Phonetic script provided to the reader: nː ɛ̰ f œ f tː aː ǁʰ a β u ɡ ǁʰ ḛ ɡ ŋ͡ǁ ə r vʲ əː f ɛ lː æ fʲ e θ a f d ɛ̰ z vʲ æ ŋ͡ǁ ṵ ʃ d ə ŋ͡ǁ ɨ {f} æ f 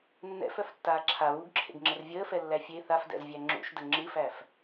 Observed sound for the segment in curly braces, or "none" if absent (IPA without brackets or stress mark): f